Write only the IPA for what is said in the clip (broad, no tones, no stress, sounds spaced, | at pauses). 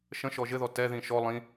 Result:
ʃ ə̃ ʃ ɔ ʒ ɘ ð ɔ t ɛ ð ĩ ʃ ɔ lˠ ĩ